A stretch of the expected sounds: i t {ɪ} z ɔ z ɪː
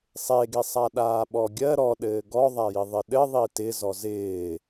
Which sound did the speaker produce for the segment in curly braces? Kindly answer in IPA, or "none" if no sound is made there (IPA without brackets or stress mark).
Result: ɪ